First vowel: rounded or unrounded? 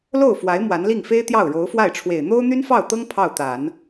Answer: rounded